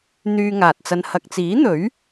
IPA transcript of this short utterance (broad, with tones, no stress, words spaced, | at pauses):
n̪yː˧ŋaː˨t̚t͡sɐ˧n hɐ˨k̚t͡siː˨˥n̪ɵ˨˥ɥ